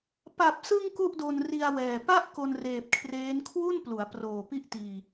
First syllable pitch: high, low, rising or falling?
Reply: low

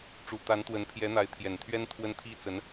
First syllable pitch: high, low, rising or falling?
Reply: low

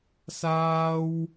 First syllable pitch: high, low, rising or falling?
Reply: high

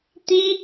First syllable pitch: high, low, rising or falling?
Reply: high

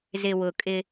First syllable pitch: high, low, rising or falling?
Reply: low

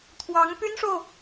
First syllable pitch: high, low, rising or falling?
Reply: rising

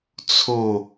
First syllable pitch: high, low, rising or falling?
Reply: falling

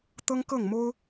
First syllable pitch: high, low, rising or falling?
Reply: high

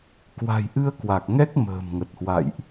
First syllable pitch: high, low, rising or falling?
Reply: low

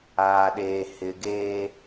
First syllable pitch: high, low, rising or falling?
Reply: low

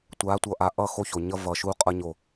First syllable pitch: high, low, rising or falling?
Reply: rising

